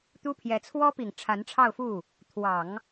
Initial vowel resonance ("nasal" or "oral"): oral